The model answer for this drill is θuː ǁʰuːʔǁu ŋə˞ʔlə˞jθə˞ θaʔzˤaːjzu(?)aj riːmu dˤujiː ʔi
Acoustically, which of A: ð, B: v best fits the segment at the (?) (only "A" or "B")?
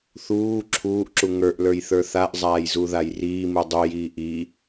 A